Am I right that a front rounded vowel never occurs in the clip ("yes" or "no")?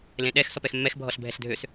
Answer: no